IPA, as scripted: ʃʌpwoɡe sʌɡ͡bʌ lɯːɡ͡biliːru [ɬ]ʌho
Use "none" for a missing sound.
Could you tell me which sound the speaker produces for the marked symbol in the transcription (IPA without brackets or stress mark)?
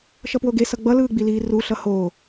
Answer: ɬ